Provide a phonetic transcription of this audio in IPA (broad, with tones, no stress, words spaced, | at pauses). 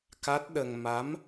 ka˦˥t̚ ɗə˧ŋ ma˧˥m